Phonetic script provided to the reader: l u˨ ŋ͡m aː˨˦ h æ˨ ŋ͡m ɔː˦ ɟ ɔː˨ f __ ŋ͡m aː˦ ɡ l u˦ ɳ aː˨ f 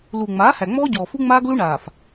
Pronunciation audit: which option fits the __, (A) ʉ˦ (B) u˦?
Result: B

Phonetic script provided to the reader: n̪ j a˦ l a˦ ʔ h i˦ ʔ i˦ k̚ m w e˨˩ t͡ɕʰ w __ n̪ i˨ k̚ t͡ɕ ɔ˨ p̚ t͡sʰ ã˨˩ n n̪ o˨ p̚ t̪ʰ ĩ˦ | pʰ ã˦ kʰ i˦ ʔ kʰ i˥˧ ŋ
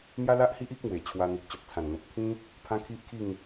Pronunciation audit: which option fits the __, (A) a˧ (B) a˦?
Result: A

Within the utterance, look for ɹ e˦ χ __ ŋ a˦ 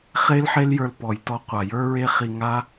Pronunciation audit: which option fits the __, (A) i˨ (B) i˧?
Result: B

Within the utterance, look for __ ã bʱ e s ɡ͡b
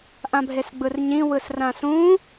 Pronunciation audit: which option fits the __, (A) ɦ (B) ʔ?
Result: B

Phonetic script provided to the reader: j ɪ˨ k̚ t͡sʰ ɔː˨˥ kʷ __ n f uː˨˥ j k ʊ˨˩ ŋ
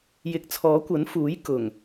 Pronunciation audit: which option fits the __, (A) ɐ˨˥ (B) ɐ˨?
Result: A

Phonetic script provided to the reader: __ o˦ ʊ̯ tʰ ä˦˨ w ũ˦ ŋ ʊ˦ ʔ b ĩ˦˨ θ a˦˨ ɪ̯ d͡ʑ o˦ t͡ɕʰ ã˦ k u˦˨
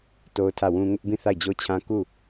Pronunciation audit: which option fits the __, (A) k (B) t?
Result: B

